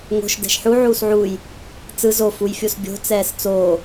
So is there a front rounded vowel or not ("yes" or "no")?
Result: no